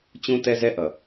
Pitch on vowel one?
high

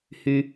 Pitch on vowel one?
high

